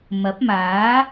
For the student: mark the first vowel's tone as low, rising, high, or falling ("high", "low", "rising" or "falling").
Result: rising